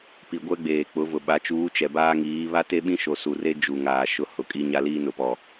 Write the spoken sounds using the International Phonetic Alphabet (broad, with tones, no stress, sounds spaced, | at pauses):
p i˨ ɡʷ ɛ˦ ɡ͡b eː˨ k͡p ʊ˨˦ v ʊ˨ ɓ a˨˦ t͡ʃ uː˨˦ t͡ʃ ɛ˨ b aː˦ ŋ iː˨˦ β a˦ t e˦ ɓ ĩ˦ ʃ o˨ s u˨ r e˦ d͡ʒ u˨ ŋ aː˨ ʃ ʊ˦ h ʊ˨˦ kʼ i˦ ɲ a˦ l iː˦ n ʊ˨ p ɔ˨